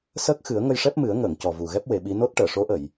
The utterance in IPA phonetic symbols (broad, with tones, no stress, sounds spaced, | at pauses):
s əː˦˥ k̚ x ɨ˨˩˦ ə̯ ŋ ə˧ j ʂ ɛ˦˥ p̚ m ɨ˨˩˦ ə̯ ŋ əː˨˩˨ ŋ c ɔ˨˩ v u˨˩ ɣ ɛ˦˥ p̚ w e˨˩˦ ɓ i˧˥ n o˦˥ t̚ ʈ əː˨˩˨ ʂ o˧˥ ʔ ə˨˩˨ j